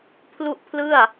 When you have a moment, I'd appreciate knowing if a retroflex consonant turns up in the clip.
no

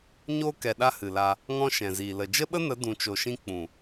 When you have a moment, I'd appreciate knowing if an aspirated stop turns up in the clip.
no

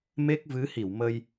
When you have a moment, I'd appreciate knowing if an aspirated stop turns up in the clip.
no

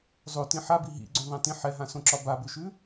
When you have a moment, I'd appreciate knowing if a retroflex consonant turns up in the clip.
no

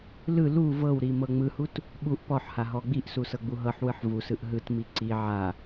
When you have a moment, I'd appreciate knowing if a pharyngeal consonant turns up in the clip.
yes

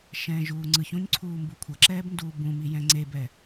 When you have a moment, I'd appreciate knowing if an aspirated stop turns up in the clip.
yes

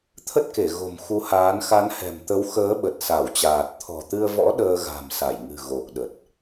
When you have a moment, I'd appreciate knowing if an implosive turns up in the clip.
yes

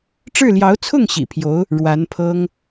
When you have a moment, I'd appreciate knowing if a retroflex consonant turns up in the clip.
yes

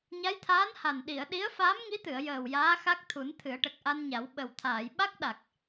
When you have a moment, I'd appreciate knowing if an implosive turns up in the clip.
yes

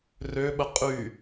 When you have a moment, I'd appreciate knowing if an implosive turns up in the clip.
yes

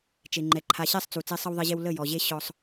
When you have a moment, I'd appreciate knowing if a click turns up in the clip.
yes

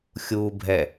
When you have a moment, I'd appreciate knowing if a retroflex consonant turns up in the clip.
no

